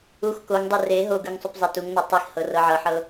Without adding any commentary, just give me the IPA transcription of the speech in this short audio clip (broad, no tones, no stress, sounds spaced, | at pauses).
u x k o ŋ dˤ ɯ r e ɦ o ɡ ɯ ŋ sˤ u p zˤ ɛ t u ŋ n ɔ tˤ i x h ɤ r ɤ ʕ ɤ ħ ɤ